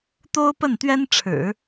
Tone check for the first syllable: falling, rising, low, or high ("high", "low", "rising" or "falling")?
high